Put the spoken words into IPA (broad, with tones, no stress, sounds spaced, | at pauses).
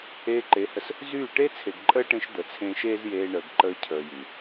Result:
eː˧ ǃ e˨˦ h ə˧ s | z yː˦˨ ʈ e˦ t͡sʰ e˨ ɡ ǃʼ əː˦ ʈ ẽ˧ ʃ d̪ ə˨ t͡sʰ ẽː˦ ʃ eː˦ z j eː˧ ɳ əː˨ ɡ ǃ əː˧ cʰ əː˧ j y˨